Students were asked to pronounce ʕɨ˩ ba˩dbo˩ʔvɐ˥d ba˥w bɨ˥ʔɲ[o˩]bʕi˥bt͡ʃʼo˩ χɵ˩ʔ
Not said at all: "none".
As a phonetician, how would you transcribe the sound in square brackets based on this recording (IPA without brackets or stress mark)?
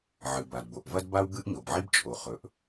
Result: o˩